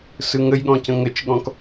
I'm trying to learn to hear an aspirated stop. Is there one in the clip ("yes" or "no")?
no